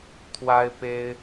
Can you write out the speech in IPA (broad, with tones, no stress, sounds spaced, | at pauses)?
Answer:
t̪ʰ w a˦ ɪ̯ p e˦ ɪ̯